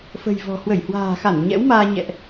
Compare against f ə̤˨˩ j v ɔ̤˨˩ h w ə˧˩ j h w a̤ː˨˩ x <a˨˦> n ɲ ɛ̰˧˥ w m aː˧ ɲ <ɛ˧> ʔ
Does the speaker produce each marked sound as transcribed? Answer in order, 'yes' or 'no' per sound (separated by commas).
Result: no, no